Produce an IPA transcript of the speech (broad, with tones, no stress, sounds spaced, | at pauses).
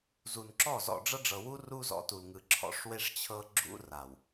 z u˨ n ǁ ɔ˦˨ z ɔ̰˨ ɖ͡ʐ ɤ˦ ɖ͡ʐ ɤ˨ w u˦ r u˦ z ɔ̰˨˦ t u˨ l ŋ ɯ˨ ǁʰ ɔ̰˨˦ ʂ w e˦ ʂ t͡ɕʰ ɤ˦ ɡ͡ǁ ṵ˦ r a˨ w